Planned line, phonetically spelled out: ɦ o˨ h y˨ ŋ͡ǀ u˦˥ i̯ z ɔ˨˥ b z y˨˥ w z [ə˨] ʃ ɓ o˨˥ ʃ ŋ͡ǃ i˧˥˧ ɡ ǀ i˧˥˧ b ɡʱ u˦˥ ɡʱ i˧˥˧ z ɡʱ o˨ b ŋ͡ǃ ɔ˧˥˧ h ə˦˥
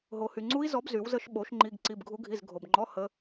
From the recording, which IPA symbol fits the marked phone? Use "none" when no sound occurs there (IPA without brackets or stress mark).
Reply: ə˦˥